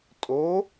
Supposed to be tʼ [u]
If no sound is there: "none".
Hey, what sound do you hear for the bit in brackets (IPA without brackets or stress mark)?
o